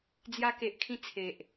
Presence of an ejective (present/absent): absent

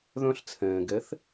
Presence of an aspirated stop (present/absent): present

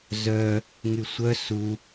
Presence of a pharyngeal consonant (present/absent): absent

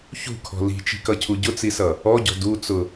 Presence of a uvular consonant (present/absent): absent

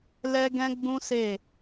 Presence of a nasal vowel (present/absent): present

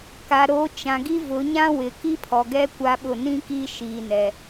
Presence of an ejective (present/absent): absent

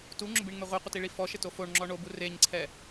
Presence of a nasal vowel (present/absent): absent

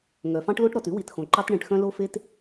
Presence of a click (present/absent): present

